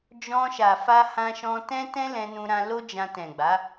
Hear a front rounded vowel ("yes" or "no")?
no